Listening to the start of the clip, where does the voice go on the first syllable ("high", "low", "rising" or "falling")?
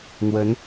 rising